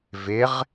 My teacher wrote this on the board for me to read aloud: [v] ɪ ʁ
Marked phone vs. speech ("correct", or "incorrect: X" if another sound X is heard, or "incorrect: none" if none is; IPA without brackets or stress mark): correct